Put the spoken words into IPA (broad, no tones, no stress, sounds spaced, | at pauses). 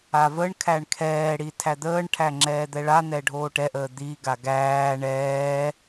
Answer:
a v ə ɳ kʰ æ ɳ kʰ ɛː ɽ i tʰ æ d̪ əː ɳ ʈʰ æ ŋ͡ǁ ɛː d̪ ɛ ɭ a n̪ ɛ ɖʱ oː ʈ ɛ ʔ əː d̪ i ɡ a ɡ æː ɳ ɛː